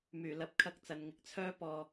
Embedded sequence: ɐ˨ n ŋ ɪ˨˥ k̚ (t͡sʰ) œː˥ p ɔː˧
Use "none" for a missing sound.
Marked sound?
t͡sʰ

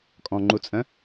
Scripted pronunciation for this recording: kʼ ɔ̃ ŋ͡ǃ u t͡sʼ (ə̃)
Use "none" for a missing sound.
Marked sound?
ə̃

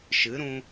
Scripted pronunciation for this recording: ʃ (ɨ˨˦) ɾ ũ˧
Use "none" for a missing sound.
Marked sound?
ɨ˨˦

